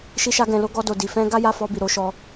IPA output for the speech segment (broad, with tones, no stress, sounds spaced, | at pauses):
ʃ i˦ ʃ a˦ ɡ ɛ̃˧ l o˦ ɡ ɔ˦ d o˧ d i˧ f ɛ̃˦ ɡ a˦ j a˦˨ f ɔ˧ b i˨ ɾ o˨˦ ʃ ɔ˧